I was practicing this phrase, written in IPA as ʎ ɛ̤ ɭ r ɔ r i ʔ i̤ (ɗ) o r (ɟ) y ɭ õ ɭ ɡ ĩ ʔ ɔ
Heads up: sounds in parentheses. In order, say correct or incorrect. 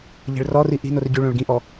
incorrect: n, correct

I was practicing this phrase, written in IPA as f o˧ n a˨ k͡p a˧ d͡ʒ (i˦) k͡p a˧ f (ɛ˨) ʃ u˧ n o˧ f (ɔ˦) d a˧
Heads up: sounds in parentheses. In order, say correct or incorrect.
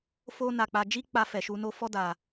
correct, correct, correct

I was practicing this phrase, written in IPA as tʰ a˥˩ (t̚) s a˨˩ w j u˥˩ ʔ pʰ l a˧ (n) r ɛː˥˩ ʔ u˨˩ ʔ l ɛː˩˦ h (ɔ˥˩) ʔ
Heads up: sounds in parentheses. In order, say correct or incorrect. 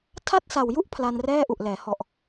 correct, correct, incorrect: ɔ˨˩

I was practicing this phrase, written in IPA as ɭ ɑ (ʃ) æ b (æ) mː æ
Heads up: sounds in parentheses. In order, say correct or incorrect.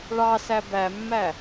incorrect: s, correct

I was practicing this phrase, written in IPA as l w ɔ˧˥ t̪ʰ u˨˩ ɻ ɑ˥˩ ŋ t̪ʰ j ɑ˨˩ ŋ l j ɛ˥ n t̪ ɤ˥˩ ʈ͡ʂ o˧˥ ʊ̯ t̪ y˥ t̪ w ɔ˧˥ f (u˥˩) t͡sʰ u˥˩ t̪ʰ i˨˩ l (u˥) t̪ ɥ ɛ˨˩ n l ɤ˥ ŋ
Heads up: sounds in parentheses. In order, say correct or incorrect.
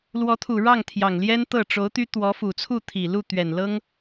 incorrect: u˨˩, incorrect: u˥˩

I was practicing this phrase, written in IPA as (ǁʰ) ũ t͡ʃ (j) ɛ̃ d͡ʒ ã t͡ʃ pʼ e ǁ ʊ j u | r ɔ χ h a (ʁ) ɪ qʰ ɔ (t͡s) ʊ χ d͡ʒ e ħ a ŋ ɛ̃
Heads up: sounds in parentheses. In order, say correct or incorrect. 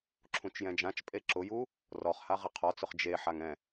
correct, correct, correct, correct

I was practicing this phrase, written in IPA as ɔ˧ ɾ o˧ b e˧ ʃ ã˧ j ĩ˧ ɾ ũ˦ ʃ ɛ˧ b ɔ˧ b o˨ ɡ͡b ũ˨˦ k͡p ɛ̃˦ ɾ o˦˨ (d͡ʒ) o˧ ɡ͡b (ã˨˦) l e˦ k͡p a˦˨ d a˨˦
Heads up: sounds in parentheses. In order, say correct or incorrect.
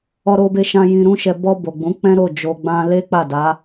correct, incorrect: ã˦

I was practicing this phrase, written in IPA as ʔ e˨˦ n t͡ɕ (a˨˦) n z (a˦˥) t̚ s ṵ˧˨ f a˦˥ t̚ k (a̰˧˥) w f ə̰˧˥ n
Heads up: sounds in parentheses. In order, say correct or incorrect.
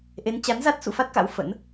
correct, correct, correct

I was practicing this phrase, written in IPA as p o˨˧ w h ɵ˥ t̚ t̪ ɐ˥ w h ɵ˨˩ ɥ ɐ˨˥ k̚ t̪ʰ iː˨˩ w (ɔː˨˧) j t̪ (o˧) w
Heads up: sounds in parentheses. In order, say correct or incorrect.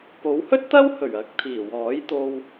incorrect: ɔː˨˥, correct

